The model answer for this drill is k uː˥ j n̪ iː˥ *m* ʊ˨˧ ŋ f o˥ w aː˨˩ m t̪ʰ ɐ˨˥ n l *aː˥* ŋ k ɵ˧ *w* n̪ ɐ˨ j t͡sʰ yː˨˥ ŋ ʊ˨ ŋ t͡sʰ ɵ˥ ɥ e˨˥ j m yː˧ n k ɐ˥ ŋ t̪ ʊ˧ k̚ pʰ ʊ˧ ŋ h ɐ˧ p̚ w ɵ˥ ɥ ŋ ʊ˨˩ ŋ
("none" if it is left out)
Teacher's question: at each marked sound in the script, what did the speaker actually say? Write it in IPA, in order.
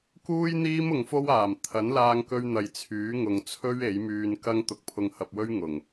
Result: m, aː˧, ɥ

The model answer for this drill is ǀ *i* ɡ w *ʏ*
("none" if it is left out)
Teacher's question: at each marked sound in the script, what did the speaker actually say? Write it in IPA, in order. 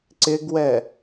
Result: ɪ, ɛ

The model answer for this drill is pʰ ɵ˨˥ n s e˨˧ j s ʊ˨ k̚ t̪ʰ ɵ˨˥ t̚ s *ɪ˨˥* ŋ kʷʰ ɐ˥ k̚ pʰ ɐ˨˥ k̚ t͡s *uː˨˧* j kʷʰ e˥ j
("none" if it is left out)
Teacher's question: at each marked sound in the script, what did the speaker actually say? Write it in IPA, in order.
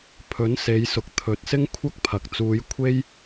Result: ɪ˥, uː˨˧

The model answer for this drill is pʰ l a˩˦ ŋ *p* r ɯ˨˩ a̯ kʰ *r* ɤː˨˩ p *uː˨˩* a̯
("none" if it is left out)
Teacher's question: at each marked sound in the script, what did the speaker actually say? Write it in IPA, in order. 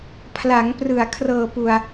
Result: p, r, u˨˩

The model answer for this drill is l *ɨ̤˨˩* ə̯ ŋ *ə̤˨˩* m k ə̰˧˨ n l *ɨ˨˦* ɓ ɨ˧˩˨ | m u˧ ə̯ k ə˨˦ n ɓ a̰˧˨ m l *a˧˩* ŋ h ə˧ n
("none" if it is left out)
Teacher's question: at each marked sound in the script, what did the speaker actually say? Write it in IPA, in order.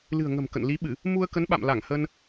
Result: ɨ̤˨˩, ə̤˨˩, i˨˦, a˧˩

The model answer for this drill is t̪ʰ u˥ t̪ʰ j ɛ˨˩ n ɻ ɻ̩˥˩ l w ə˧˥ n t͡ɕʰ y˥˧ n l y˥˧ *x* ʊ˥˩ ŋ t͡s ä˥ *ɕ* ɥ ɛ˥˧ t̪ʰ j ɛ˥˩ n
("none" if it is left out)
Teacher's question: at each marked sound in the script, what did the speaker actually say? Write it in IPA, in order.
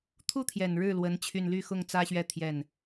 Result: x, ɕ

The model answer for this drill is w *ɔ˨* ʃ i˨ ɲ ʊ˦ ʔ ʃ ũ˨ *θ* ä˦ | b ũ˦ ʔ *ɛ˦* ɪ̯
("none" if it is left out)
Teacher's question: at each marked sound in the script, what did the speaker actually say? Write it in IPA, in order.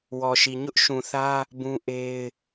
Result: ɔ˨, θ, e˦

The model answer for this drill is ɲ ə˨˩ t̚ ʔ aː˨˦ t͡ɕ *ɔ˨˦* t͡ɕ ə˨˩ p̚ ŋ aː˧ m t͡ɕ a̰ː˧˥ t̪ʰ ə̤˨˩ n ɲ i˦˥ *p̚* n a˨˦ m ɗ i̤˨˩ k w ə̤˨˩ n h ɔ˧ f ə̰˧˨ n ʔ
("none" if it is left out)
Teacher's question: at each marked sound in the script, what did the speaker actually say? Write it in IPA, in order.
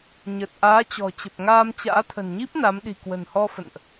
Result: ɔ̤˨˩, p̚

